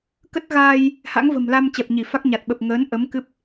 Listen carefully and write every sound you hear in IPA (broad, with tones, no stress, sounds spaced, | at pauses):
k ə˦˥ t̚ ɣ aː˧ j | h a̰˧˥ ŋ v ə̤˨˩ m l a˧ m t͡ɕ ɛ˨˩ p̚ ɲ i˧˩ f a˦˥ k̚ ɲ a˨˩ t̚ ɓ ə˨˩ p̚ ŋ əː˨˦ n ʔ ə˨˦ m k ɨ˦˥ p̚